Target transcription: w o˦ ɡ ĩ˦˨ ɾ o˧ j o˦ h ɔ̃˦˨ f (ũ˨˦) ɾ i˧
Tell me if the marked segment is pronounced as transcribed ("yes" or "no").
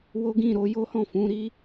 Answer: yes